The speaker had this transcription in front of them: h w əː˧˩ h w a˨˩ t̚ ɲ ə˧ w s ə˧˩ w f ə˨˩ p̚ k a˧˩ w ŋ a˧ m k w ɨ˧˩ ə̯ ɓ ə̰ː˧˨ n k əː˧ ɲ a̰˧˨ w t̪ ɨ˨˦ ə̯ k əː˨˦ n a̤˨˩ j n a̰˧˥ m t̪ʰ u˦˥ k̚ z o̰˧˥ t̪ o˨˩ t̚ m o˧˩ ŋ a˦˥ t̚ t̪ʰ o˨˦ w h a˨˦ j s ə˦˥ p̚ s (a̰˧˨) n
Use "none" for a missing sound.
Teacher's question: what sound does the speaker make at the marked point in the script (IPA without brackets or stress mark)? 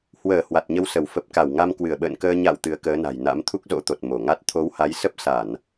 a˧˩˨